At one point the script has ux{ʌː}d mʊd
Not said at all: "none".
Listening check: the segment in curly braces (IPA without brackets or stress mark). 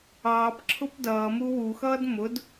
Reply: ʌː